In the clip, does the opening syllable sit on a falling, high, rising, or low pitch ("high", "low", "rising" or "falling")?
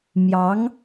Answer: rising